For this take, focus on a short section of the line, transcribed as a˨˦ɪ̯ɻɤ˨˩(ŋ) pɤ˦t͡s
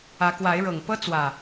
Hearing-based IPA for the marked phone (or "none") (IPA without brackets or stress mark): ŋ